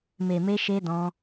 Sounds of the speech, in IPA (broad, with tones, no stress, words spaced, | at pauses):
me˧me˦ ʃe˦dɔ̃˦